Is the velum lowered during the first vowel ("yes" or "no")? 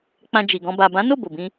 yes